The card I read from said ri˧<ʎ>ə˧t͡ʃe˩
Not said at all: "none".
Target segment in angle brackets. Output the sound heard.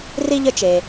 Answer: ʎ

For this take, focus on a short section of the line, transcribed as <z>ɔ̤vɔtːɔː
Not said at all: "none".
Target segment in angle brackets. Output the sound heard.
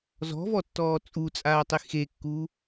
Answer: z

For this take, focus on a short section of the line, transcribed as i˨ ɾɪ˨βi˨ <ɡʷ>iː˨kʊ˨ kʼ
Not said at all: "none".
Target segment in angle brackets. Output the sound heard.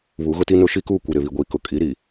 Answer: ɡʷ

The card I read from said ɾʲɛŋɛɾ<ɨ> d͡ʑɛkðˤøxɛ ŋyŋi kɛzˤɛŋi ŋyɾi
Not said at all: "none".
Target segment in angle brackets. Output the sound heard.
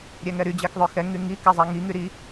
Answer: y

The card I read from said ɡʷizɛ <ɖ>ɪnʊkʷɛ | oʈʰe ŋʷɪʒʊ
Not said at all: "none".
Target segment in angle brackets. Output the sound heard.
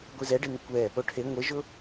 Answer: ɖ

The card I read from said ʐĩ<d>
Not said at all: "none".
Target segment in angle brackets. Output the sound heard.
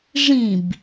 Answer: b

